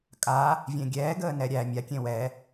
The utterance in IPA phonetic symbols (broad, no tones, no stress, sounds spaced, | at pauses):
kʼ a | vʲ ẽ ɡʲ ɛː ɡ əː n ɛ ɾʲ æ mʲ a kʲ ẽ w ɛ